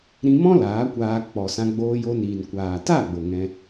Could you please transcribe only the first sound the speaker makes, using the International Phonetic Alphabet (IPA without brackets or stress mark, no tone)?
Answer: ɾ